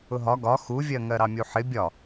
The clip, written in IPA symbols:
ʊ ɦ ɒ ɡ ɒ x u vʲ ɜ ŋ ɜ ɾ ɑ mʲ u ħ ɪ bʲ ɒ

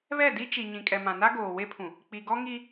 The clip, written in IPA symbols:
β ɛ˦˨ d i˦ t͡ʃ i˨ ɲ ĩ˨ kʼ ɛ˨ m ã˨ n a˦ ɡ oː˨ w e˦ pʰ ũ˨ | k͡p i˨ ɡ ɔ˦ ŋ i˦

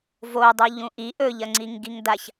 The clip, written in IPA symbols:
v o dˤ u ʎ ũ ʔ i ʔ ɵ ʎ ɐ ŋ͡ǀ i ŋ ɡ i ŋ d a ç

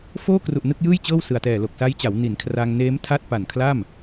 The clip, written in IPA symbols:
f oː˥˩ k r u˨˩ ʔ n ɯ˥˩ k̚ j ɯː˥˩ j t͡ɕ ɤː˥˩ w s ɯ˨˩ a̯ t ɛː˨˩ l o˨˩ k̚ s a˦˥ j t͡ɕ a˩˦ w n i˩˦ n kʰ r a˧ ŋ n eː˦˥ m tʰ a˥˩ t̚ p a˨˩ n kʰ l a˥˩ m

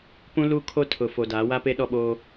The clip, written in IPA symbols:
p ũ˦ l uː˦ kʰ o˦ tʰ ʊ˨ f o˨ d aː˨˦ w a˦ p e˦ ɗ ɔ˦˨ ɓ oː˦

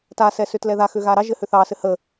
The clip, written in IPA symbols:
t a s ɛ s ʏ t l ɛ ð a x ʏ ɣ a ɾ ɑ ʒ ɘ h ʏ θ ɑ s ɘ h ə

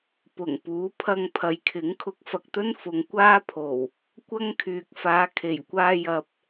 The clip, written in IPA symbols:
p ʊ˨˩ ŋ p uː˨˥ pʰ ɐ˧ ŋ pʰ ɐ˨ j kʰ ɪ˨˥ ŋ kʰ ʊ˧ k̚ f ɐ˧ k̚ t̪ ɵ˥ n f ʊ˨˧ ŋ kʷ aː˥ pʰ o˨˩ w | kʷ ɐ˥ ŋ kʰ yː˨ k̚ f aː˨˧ kʰ e˨˩ j kʷ aː˧ j ɐ˨ p̚

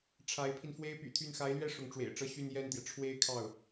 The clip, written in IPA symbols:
ʈ͡ʂʰ a˧˥ ɪ̯ pʰ i˧ n f w e˥ ɪ̯ p y̰˨˩ t̪ʰ y˥˩ n x a˧˥ ɪ̯ l ɥ ɛ˥˩ ʂ ʊ˧˥ ŋ ʈ͡ʂ w ḛ˨˩ ɪ̯ ʈ͡ʂ ɤ˥˧ ɕ y˥˧ n j ɛ˥˩ n t̪ j ɛ˩ ʈ͡ʂʰ w e˥ ɪ̯ kʰ ɑ˥˩ ʊ̯

